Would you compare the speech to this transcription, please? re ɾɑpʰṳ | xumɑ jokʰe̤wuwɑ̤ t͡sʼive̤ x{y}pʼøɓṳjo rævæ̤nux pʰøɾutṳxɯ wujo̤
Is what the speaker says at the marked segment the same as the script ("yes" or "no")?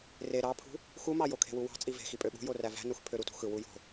no